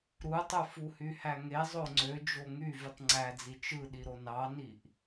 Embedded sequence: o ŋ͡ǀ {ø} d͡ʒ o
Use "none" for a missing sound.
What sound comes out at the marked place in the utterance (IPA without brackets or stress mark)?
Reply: ø